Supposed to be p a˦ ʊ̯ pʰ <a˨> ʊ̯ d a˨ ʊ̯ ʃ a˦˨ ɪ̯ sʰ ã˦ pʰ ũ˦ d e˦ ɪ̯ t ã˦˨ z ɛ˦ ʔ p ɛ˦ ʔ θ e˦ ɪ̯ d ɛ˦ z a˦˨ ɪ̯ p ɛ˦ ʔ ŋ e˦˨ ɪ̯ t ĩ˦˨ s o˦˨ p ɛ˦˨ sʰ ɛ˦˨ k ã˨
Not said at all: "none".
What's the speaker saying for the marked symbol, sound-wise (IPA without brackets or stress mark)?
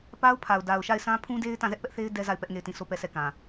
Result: a˨